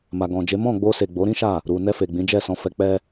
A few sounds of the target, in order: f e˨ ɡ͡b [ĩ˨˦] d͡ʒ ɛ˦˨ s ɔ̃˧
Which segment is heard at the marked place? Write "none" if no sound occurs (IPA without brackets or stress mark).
ĩ˨˦